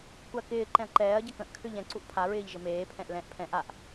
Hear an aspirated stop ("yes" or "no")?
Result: yes